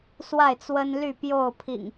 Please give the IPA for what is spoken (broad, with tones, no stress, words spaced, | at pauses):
swa˥˨ɪ̯t͡swə˦nly˥˨ pjo˥˨ʊ̯ pʰḭ˨˩ŋ